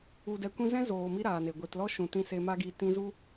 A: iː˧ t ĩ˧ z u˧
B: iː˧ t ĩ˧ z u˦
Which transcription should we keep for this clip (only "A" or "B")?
B